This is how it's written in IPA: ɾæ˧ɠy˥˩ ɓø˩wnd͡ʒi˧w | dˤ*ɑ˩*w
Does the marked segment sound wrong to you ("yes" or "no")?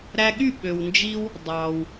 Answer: no